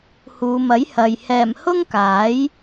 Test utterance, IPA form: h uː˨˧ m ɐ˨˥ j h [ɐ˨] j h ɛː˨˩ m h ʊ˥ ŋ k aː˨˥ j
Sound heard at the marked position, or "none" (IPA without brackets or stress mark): ɐ˨